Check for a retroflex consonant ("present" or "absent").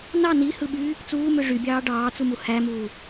present